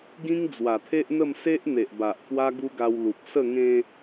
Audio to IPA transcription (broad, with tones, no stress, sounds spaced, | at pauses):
ɡ ĩ˦ ŋ d͡z w a˨˩ t̪ʰ e˦ ʔ n̪ ə˥˧ m s e˦ ʔ n̪ e˨ ʔ b a˨ ʔ k w a˦ ɡ u˦ ɡ a˧ w l u˨ p̚ s ə˥˧ ŋ ẽ˦